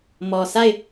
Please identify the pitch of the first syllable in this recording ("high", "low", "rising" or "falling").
low